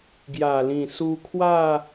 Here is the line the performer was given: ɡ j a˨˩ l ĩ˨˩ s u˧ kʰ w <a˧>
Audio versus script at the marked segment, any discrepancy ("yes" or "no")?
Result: yes